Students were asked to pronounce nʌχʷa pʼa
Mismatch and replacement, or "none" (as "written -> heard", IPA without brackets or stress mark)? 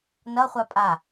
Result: none